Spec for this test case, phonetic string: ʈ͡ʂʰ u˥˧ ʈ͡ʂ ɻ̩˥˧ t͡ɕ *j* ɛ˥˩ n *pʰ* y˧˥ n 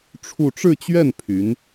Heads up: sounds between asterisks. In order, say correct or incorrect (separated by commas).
incorrect, correct